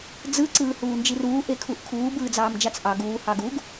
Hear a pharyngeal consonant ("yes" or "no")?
no